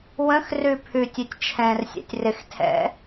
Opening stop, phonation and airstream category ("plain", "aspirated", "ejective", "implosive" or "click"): aspirated